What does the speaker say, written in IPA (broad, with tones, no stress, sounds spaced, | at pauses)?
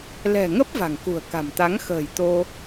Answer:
l ɛ̤˨˩ ŋ ə˦˥ p̚ v a̤˨˩ ŋ k ṳ˨˩ ə̯ k a̤˨˩ m t̪ a˨˦ ŋ x ə̤ː˨˩ j t̪ o˧